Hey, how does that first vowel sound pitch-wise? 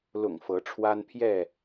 low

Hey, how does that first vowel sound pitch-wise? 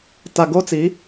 low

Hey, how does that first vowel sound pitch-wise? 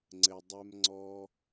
low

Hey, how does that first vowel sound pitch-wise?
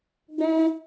high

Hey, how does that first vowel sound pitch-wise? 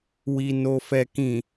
low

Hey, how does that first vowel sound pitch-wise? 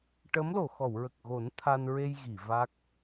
rising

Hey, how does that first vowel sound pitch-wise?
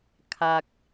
low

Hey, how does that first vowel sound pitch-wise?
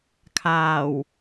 low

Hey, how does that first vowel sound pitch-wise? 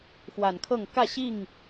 low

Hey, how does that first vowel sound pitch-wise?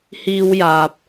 high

